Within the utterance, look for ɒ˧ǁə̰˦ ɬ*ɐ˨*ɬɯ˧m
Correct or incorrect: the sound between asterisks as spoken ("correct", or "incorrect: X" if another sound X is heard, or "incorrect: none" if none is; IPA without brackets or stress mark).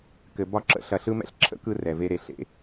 correct